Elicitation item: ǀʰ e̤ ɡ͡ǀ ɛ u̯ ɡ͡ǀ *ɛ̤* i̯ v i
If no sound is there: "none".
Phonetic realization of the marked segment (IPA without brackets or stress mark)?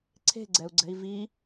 ɛ̤